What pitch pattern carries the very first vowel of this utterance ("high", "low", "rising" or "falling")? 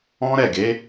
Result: high